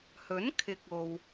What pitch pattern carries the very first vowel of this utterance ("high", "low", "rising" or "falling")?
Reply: rising